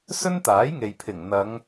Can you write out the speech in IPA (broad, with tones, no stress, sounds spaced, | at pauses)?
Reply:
s ɵ˥ n t̪ aː˨˥ j ŋ e˨ j pʰ ɪ˨˩ ŋ n̪ ɐ˨˧ ŋ